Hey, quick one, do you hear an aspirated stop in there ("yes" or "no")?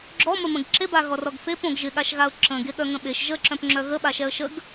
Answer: no